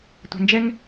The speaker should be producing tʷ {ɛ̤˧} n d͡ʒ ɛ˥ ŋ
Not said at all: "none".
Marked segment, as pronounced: ɛ̤˧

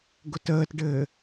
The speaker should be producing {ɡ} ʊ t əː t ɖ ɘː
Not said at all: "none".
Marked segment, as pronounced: ɡ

